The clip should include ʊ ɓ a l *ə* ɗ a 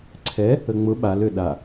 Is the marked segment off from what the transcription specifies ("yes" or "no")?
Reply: yes